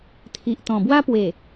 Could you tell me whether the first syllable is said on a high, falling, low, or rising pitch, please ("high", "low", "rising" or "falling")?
low